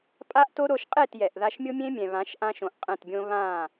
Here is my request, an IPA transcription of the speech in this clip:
pʼ a˦ ʔ t o˦ ɾ o˧ ʃ qʼ e˦˨ t j ɛ˨ ʔ ð a˧ ʃ mʲ ʊ˦ mʲ ẽ˦ mʲ ɛ̃˨ β ã˨˦ ʃ ʔ ã˧ ʃ õ˨ ʔ qʼ ɛ̃˦˨ t bʲ õ˦ β ã˦˨

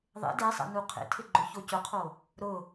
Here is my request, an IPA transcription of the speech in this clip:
ðˤ ḛ d e sˤ ɛ̰ n u qʰ ḛ tʰ ɪ ɡ͡ǃ ʊ ç o c ʊ qʰ o | ɾ ʊ

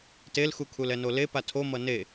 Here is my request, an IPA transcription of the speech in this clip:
t e l x u kʰ u l ɛ n o l e p a tʰ o m ʌ n e

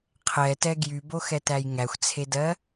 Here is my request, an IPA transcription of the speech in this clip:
qʰ ɛ t ɛ ɡ j y b o x ɛ t æ j ŋ æ xʷ t͡sʰ e d ɜ

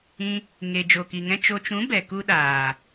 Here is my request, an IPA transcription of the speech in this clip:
ĩ˧ | ŋ e˨ d͡ʒ o˨ k i˨ ŋ ɛ̃˦ t͡ʃ o˨ t͡ʃ ũ˨˦ b ɛ˨ k u˦ ɗ aː˨

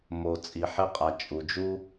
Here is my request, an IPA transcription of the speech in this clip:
m o˨ t͡sʼ i˨ ħ e˦ qʼ æ˨ t͡ʃʼ u˨ d͡ʒ u˥

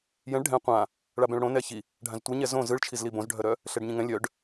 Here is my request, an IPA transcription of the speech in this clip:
j ɛ̃ ɭ ɖʱ ɛ̃ qʷ ã | ɭ a b ɛ̃ ɭ ɽ õ n ɛ ç i | ɖʱ ã z tʷ i ɲ ɛ z õ z ɯ ɭ t͡ʃʰ i z l i b õ z ɖʱ œ ɾ œ | ɬ ɛ ɖ ɲ ĩ ŋ ɛ̃ lʲ œ ɖ

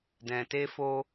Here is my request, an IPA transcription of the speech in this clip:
d ɛ̃˨ t e˧ f o˧

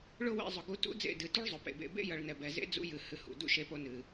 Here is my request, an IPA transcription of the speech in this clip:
ɭ ʊ˦ w ḛ˧ zˤ ʊ˨ ɡ u˧ t ṵ˦ d͡z ḛ˦˨ d ɨ˨ t u˦ ɭ zˤ ʊ˨ p ḛ˨ b ḛ˧ b ḛ˦ j ʌ˨ ɭ n ɛ˨ b ɛ˨ z ḛ˦ d͡z ṵ˧ j ɨ˨ h ɨ˨ h ṵ˨ d ṵ˦˨ ʃ e˧ p o˧ n ɨ˨

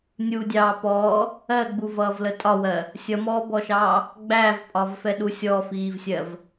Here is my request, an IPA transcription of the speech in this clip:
nʲ u dʲ ɑː p ɔː | ɜ ɡ͡b u v ʌː v l ə tʼ ɒ w ɜ | sʲ ʌ m ɔː b ɔ ʃ ɑː | ɡ͡b æː v pʼ ɒ v f ɛ ɗ u sʲ ɔ f iː v sʲ ɜ v

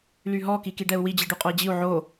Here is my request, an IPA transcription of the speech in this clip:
l y ɦ ɔ k i k i ɖ ɛ u̯ w i d͡ʑ i ɖ y qʼ o i̯ d͡ʑ i u̯ ʕ o

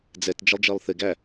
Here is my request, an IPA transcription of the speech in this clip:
d͡z ɛ t d͡ʒ ə lˠ d͡ʒ ɜ lˠ θ ɪ ɡ æ

